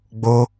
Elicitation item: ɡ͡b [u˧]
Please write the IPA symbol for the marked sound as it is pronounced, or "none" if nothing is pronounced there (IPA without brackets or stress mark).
o˧